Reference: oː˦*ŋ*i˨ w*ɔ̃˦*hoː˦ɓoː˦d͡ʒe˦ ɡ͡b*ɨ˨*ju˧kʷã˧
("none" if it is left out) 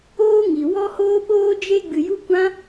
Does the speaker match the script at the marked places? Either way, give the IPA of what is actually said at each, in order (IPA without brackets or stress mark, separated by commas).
ŋ, ɔ˦, ɨ˨